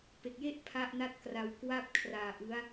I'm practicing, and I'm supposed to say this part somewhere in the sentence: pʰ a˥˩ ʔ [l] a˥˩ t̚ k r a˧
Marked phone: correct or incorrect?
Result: incorrect